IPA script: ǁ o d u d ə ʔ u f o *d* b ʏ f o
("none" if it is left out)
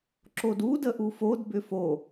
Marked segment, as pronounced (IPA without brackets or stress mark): d